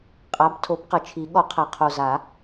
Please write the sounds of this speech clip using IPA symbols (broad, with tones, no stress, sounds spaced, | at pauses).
qʼ a˩˥ b tʰ o˩˥ b q ə˨˩ t͡ʃʰ i˨˩˦ ɠ ɔ˨˩˦ qʰ a˨˩ qʰ o˨˩ z a˨˩˦